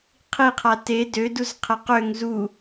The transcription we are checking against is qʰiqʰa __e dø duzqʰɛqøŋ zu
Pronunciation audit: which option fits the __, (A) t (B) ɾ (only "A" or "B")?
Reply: A